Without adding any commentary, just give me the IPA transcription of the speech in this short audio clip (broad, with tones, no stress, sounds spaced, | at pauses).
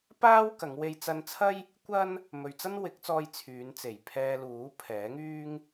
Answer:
p aː˥ w k ɐ˨˧ ŋ w e˧ j t͡s ɐ˧ n t͡sʰ ɐ˥ j | kʷ ɐ˥ n | m ɵ˨ ɥ t͡s ɐ˥ n w ɪ˨˥ k̚ t͡s ɔː˧ j t͡sʰ yː˨˧ n t͡s e˨˩ j pʰ ɛː˧ l uː˨˥ pʰ ɛː˨˥ ŋ yː˥ ŋ